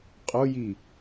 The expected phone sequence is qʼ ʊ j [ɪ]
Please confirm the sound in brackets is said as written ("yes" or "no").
no